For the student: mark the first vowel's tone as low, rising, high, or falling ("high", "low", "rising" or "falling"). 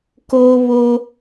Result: high